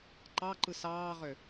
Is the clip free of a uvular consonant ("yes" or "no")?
no